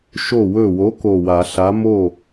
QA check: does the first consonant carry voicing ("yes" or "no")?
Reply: no